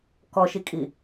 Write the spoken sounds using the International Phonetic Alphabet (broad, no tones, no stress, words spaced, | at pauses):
kɔʃikʼi